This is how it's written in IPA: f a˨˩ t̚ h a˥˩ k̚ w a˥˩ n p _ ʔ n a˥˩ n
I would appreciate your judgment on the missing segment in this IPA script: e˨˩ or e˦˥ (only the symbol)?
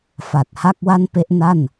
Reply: e˦˥